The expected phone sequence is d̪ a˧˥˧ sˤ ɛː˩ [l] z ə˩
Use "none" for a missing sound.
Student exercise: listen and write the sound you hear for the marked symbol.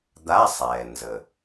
n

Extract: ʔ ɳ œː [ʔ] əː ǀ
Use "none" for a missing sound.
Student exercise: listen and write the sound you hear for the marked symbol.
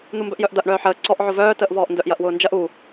ħ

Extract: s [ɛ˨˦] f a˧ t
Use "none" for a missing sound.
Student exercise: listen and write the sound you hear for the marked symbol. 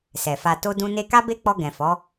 ɛ˨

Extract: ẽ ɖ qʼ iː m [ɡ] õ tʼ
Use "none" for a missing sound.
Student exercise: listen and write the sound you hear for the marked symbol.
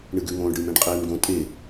ɡ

